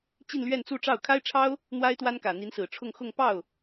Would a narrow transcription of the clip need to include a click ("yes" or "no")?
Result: no